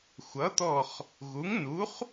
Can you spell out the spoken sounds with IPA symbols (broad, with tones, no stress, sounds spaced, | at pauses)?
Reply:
xʷ ʌ˩˥ t̪ ɔ˧˩ χ | ɣ u˩˥ ŋ n u˩˥ χ